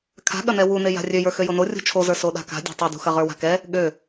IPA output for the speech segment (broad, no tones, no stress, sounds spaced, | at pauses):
kʰ a̤ ɠ ɐ n ɛ w u n e j a̤ rʲ ø j ə˞ x ø j o n o rʲ ṳ t͡ʃʰ o z ə˞ s o ɗ a̤ k a̤ dʲ a̤ tˤ ɐ d ṳ x ɐ ʁ ə˞ w a̤ k ɛ | ɠ ø